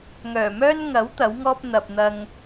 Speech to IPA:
ŋ œː˨˩ m œː˥ n ŋ ɐ˨˥ w t̪ ɐ˨˥ w ŋ ɔː˥ p̚ n̪ ɐ˨ p̚ n̪ ɐ˧ ŋ

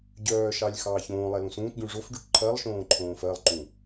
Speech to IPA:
ɟ œː ʃ ɑ lʲ x ɑː ç õː lˠ ɛ l ũ s ũː t ɟ ũ ʐ o f ɖ u ʈ ǃʰ ɜ lˠ ʃ õː ǃʰ õː f ɜ lˠ ǃ ũ

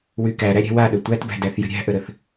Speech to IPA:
w y k æ ɾ æ ɾʲ æ̤ w a ɗ ɘ tʷ æ t b æ̤ d æ θ j ə̤ ɾʲ æ̤ ʔ ə ɾ ə θ

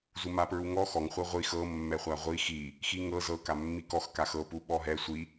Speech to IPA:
z u m a p ɹ u ŋ ɔ x ɔ ŋ χʷ ɤ ʁʷ i x ɤ mː ɛ χʷ a ʁʷ i x i | x i ŋ ɤ z ɤ k a mː i k ɔ x k a x ɤ p u ɓ ɔ ɦ ɛ sʷ i

